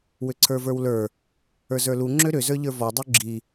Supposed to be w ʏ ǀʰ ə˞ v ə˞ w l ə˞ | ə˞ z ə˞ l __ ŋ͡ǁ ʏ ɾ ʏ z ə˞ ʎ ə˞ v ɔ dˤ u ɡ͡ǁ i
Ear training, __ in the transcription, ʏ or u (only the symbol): u